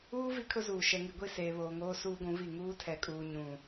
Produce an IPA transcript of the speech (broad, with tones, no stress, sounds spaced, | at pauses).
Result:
uː˦ v i˦ kʰ ʊ˦ z uː˨ ʃ ɛ˨ ŋ i˨ ɡʷ i˦˨ s eː˨ β oː˨ ŋ oː˦ s uː˦ ɡʷ ũ˨˦ v i˦˨ ŋ uː˦ tʰ ɛ˨ kʼ uː˨ ɲ ũ˨